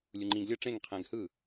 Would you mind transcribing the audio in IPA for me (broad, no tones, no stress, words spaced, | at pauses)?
lʲuŋ͡ǃĩɡ lʲɤ ʈ͡ʂẽŋ qʰɛ̃ɡhɯ